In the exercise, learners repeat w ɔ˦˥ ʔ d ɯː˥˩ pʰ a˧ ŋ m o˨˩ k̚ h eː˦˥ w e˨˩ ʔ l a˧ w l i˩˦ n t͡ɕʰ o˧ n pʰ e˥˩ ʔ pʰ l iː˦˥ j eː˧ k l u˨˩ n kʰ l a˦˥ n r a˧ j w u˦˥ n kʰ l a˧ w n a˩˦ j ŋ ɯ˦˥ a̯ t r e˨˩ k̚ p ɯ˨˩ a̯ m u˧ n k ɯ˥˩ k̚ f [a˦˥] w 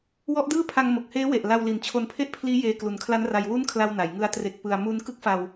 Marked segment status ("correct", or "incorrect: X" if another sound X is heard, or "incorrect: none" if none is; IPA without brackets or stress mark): incorrect: a˧